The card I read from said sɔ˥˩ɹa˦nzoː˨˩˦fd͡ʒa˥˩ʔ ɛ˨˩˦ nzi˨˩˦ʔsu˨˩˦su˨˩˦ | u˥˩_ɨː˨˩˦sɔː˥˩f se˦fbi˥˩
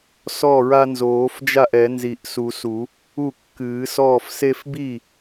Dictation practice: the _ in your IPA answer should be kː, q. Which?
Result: kː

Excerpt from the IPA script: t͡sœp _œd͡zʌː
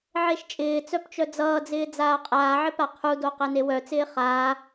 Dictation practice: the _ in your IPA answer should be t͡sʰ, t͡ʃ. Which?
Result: t͡ʃ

